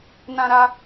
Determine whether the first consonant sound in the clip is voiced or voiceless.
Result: voiced